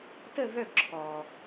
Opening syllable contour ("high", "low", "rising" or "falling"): falling